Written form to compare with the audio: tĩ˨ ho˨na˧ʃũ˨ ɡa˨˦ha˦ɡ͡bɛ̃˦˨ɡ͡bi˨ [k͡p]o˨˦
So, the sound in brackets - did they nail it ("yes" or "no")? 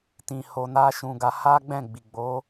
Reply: no